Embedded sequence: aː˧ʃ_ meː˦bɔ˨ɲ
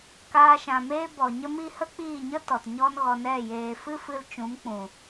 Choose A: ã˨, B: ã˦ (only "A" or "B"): A